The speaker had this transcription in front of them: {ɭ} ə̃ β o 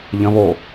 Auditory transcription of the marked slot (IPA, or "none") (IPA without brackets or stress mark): ʎ